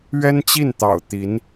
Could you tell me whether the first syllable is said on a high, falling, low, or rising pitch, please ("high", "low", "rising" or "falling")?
high